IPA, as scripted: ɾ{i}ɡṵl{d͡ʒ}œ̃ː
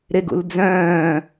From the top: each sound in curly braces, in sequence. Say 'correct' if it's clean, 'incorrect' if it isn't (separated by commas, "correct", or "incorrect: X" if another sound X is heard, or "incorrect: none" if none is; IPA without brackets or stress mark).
incorrect: e, incorrect: d͡z